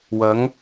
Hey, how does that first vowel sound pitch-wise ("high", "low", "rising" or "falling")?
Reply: rising